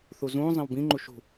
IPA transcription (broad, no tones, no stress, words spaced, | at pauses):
θuzũː zˤẽwbĩ ŋ͡ǃuʃṳ